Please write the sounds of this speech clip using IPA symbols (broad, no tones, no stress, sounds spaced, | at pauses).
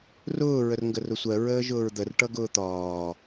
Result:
r ʊː ɹ ə r ŋ ɡ ə r ʊ sʷ ɜ ɹ əː ʒ ʊː ɹ d̪ ə r ʈ ʌ ɡ ʊː t̪ ɒː